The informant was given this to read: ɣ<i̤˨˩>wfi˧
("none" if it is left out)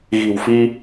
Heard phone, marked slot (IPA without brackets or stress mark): i̤˨˩